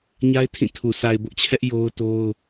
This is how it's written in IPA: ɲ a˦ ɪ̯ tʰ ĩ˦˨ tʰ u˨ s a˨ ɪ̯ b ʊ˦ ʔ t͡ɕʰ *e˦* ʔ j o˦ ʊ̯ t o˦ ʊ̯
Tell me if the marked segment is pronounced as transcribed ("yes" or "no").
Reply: no